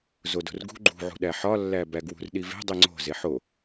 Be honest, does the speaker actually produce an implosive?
yes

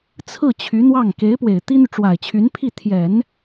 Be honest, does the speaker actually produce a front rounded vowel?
yes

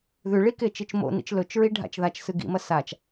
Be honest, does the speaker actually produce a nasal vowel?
no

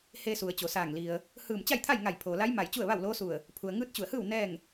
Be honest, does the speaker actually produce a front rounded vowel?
no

